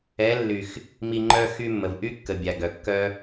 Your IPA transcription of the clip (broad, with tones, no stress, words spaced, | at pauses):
ɛ˨˦lːy˨x | mi˧ŋ͡ǃœ˦ xy˦mːə˨v ʔy˦kːə˨ bʲa˨ɡœ˨ kːœ˦